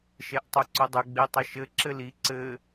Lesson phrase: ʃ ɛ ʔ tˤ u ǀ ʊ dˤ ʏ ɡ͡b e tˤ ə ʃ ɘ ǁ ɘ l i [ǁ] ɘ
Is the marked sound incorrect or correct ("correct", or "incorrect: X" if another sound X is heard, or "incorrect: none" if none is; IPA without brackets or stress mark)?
incorrect: ǀ